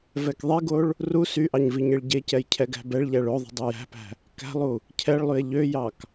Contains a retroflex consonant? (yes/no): yes